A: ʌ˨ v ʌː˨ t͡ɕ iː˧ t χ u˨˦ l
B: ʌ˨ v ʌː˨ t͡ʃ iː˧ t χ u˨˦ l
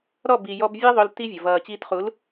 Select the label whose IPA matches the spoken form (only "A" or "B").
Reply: A